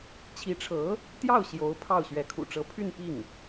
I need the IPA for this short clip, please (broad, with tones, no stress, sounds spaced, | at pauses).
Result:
t͡ɕʰ i˧˥ ʈ͡ʂʰ ɤ˧˥ | t̪ j ɑ˥˩ ʊ̯ ɕ j o˧˥ ʊ̯ pʰ ɑ˥˩ ʊ̯ ɕ ɥ ɛ˧˥ kʰ ṵ˨˩ ʈ͡ʂ ɤ˧˥ pʰ y˥˧ n p i˥˩ ŋ